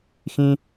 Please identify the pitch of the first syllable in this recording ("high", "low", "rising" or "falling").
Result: high